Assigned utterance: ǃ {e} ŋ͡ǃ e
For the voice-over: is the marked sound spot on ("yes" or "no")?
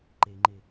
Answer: yes